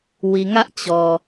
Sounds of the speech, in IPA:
wi˨ŋä˦ʔ t͡ɕɔ˨

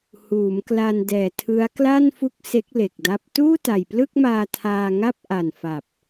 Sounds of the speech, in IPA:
huː˩˦mkla˧ndɛː˨˩ tʰɯ˦˥a̯ kla˥˩nfu˦˥k̚ se˦˥k̚le˨˩k̚da˦˥p̚ tuː˥˩ta˨˩jplɯ˥˩k̚maː˧ tʰaː˧ŋa˥˩p̚ʔa˨˩nfa˨˩p̚

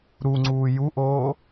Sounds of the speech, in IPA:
ɾuŋ͡ǀuː juʔoː

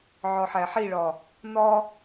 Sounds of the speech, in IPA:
ʕɒħæħiɭɒ | nɒ

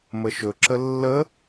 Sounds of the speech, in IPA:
məʃɵǁə lːə

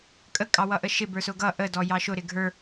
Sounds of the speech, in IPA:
kʼə kʼɑwʌʔəʃɪ bə˞sʊɡʌ ʔə dɔjɑʃʊ ɾɪɡʱə˞

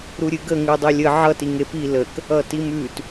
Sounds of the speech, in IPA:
ɾuɾʲɨɡə ŋʉdˤelʲə ʕʌ tiŋepi lək | ʌtimʉt

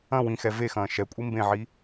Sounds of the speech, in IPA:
ɐ̃ wĩ xɛvexɐ̃ː ʃɛkʷʼi mbẽʕi

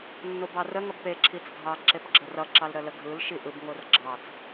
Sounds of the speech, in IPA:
nːobɑrə ŋʌbpe ǁʰit͡sɡʱɑ ǁepɡ͡ǁərʌ ǁɑlɾələɡʱɯl ʃiʔɯb ŋorɡ͡ǁɑt͡s

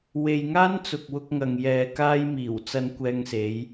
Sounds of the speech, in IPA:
we˨jŋaː˥n t͡sʊ˨k̚wʊ˧k̚ŋɐ˨ŋ jɛː˧kaː˥j miː˨˩w t͡sɐ˧nkʷɛː˧ŋse˨˧j

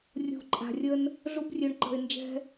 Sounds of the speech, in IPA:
rʲṳ˨ ǃʼa̤˨rʲə˧n | ɮu˧brʲø˨ɳ ǃə̤˨ɪ̯nd͡ʒɛ̤˧

